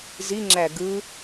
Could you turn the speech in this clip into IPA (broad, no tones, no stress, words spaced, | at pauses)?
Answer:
ziŋ͡ǁæ ɡɯ